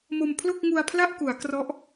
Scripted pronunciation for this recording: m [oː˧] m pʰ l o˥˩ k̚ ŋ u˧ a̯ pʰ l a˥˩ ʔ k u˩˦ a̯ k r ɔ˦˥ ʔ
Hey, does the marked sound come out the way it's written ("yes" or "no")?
no